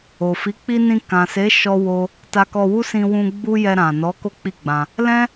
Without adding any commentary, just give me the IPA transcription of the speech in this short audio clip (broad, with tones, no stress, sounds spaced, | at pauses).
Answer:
o˨ f i˨˦ k͡p i˦ n ĩ˧ k ã˨ s e˨˦ ʃ ɔ˦ w o˦ | t a˧ k ɔ˧ w u˦ s ĩ˧ w ũ˧ ɡ͡b u˦ j ɛ˧ ɾ ã˨ n ɔ˨˦ k o˦ k͡p i˦˨ ɡ͡b ã˧ | l ɛ̃˦